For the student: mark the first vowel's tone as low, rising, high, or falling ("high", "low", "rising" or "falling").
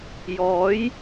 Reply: rising